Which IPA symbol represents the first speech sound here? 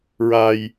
ɹ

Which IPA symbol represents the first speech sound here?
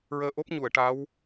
ɹ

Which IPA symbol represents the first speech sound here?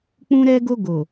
k͡p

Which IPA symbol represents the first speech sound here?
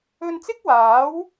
ɵ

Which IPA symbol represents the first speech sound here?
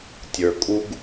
tʲ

